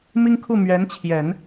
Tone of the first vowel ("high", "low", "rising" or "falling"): high